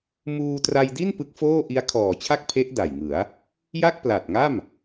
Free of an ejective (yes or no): yes